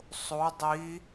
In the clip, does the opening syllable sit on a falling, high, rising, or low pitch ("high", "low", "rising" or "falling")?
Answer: rising